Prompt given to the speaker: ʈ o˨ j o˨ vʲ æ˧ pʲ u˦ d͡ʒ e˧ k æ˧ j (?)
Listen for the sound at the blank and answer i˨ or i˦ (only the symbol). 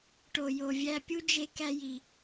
i˨